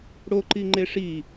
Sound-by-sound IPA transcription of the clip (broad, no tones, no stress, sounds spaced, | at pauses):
ɽ o ǃ i ŋ͡ǃ e ʂ i